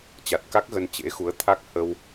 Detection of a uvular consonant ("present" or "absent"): absent